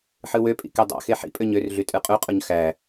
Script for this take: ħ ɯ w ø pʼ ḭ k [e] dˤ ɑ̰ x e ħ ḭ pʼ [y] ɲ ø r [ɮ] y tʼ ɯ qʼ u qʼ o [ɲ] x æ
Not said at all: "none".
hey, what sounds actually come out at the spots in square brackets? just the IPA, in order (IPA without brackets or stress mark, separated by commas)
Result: e, ø, ɮ, ɲ